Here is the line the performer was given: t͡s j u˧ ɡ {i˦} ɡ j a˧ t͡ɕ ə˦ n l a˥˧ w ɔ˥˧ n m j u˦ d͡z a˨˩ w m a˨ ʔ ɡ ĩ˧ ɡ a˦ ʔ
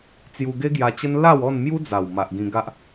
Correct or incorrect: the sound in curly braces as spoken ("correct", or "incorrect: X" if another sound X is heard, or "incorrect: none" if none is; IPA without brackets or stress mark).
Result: incorrect: e˦